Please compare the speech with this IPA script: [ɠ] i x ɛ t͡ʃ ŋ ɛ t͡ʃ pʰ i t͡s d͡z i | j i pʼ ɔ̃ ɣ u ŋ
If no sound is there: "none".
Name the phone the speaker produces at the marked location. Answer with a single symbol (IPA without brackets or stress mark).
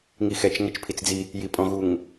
ŋ